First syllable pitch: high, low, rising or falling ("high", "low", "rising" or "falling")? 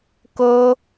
high